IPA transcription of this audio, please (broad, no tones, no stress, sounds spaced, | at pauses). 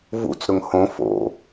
v ṵ t͡s ɾ ʊ ŋ h õ f o̰